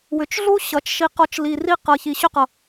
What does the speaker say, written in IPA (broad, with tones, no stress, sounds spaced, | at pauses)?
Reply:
w ʏ˨˦ t͡ʃ ɮ u˦ ɕ ʌ˨˦ t͡ʃ ʃ i˧ q ɔ˧ t͡ʃ l i˧ r i˦ q ɤ˧ ç i˧ ɕ ʏ˦ q ʌ˧